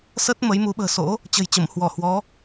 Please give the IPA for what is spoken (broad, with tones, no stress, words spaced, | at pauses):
sə˦˥t̚ mə˨˦jmu˨˦ ɓə̤ː˨˩so̰˧˥ | t͡ɕə̤˨˩jt͡ɕə˧˩m hwɔ˧˩hwɔ˨˦